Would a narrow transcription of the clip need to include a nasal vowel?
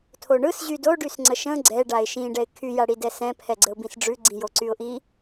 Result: yes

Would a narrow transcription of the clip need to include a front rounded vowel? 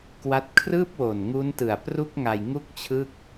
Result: no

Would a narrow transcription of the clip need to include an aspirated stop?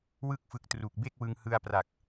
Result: no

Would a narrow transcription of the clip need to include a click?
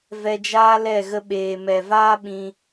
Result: no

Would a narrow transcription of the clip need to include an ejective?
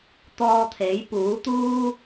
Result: no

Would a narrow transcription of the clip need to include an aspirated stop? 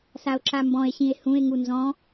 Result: no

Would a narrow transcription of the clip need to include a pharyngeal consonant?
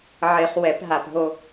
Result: yes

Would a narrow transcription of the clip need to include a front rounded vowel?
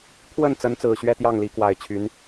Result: yes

